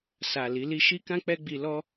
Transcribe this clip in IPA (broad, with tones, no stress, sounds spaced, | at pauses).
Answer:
s a˨ l i˨˦ l i˦ ʃ i˦ k ã˦ k͡p ɛ˦ ɡ͡b i˧ l ɔ˦